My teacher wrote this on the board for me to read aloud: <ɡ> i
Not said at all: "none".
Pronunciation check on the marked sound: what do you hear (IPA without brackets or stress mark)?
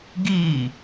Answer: ɡ